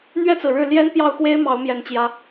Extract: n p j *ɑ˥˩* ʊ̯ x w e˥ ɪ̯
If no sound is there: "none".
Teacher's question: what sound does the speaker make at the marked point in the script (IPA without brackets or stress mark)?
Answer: ɑ˥˩